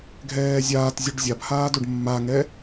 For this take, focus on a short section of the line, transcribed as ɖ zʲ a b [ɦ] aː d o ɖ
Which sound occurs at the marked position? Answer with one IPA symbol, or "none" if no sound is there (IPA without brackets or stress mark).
h